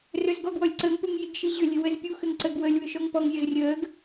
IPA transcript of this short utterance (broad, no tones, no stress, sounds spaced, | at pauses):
r ɵ z ɡ ɔ ɡ w ɔ lʲ ǀ əː ŋ p u ŋ j i ɡ ʃ i ʑ ʏ lʲ ɘ w ə z pʲ u x ʏ ŋ ǀ ə ɡ w ə lʲ w ʏ ʃ ɔ ŋ p ɔ ŋ zʲ ɔ z rʲ əː ɡ